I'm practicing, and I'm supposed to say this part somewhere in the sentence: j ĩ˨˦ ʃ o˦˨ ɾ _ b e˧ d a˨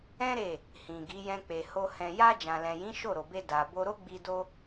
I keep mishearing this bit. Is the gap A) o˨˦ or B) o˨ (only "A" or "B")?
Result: B